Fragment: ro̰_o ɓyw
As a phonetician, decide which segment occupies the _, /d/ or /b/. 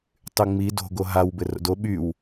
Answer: d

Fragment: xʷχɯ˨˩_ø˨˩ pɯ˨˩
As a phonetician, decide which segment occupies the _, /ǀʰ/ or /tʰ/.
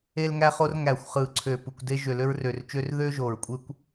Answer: ǀʰ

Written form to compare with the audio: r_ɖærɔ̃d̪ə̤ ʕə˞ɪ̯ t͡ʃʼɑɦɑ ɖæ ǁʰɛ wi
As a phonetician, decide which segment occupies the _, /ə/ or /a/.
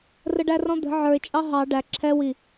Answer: ə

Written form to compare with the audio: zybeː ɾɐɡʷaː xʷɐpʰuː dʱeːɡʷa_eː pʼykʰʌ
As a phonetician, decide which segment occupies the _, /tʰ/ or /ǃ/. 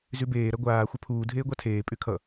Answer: tʰ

